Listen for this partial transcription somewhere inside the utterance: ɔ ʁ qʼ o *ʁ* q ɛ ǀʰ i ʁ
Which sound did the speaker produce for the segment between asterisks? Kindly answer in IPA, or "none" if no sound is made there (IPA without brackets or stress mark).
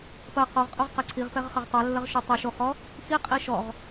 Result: ʁ